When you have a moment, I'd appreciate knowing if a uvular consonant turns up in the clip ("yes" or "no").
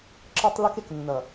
no